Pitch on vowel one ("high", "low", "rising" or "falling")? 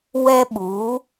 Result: high